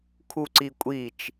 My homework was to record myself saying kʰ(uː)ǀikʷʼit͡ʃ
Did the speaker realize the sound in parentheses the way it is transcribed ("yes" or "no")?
no